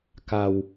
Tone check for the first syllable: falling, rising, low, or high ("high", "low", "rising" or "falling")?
low